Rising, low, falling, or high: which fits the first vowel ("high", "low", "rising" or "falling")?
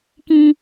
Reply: high